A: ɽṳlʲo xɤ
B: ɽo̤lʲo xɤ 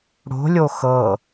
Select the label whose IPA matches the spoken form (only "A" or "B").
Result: B